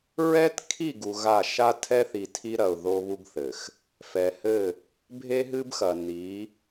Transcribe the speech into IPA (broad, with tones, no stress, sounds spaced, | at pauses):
ɹ ɛ˦ t kʰ i˦˨ ɡ u˨ ɣ a˦˨ ʃ a˦ tʰ ɛ˦ θ i˨ tʰ i˦ ɾ ɐ˨ ʊ̯ ð o˦ β u˦ ɡ θ ɘ˨ x | f ɛ˨ h ɘ˦˨ | bʱ e˦ ɦ ɨ˦ b x ɐ˨ n i˨˦